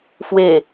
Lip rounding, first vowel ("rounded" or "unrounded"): unrounded